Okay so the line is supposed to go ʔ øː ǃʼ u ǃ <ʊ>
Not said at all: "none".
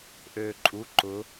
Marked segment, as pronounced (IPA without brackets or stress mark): ʊ